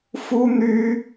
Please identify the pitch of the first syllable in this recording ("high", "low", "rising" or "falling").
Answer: high